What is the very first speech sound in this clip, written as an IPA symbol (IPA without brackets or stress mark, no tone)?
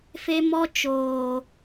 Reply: f